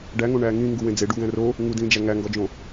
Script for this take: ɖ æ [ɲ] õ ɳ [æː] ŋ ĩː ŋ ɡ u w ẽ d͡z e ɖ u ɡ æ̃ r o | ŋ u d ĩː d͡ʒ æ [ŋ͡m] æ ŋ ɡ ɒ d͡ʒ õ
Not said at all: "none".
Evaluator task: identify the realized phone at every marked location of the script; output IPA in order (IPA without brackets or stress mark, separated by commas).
ŋ, æː, ŋ